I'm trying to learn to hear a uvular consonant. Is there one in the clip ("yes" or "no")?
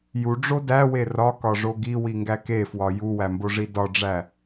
no